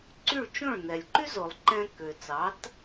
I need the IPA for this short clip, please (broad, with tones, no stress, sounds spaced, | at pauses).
ǀ y˥˩ ɭ t͡ʃ õ˥˩ ɭ n ɛ˩ lʲ ǃ y˥ z o˩ lˠ ǃ ɛ̃˧ k ø˩ t͡s ɑ˩˥ t